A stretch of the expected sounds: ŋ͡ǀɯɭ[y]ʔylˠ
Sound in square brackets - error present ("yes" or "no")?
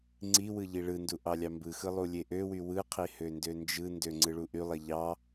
yes